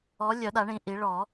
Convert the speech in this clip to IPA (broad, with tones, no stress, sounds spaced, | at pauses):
ɔ˨˥ lʲ œ˨˩˦ ɗ a˨˩˦ ɳ ĩ˨˩ ʔ i˨˩˦ ɭ ɔ˨˩˦